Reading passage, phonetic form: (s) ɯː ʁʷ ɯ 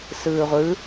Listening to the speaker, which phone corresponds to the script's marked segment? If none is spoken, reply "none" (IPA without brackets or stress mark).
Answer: s